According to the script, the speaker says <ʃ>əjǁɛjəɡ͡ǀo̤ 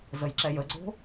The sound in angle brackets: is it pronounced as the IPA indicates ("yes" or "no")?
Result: no